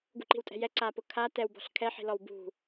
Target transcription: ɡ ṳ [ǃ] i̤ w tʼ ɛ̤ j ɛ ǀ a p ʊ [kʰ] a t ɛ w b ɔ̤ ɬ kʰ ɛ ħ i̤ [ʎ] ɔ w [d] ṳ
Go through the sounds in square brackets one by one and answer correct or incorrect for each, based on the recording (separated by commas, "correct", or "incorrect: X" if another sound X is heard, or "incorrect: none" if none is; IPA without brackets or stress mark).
correct, correct, incorrect: l, incorrect: b